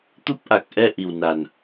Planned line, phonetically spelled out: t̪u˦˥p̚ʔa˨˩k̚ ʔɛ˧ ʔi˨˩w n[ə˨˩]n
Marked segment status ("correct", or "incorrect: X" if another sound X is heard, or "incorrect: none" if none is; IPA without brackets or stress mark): incorrect: a˨˩